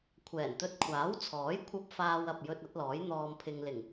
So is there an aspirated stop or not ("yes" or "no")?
yes